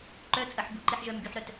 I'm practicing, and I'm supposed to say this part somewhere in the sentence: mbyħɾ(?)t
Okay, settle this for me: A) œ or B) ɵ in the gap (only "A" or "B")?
A